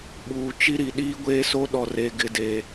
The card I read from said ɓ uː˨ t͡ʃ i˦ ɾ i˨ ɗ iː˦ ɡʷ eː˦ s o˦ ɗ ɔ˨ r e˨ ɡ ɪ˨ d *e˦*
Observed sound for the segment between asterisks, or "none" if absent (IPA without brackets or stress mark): e˨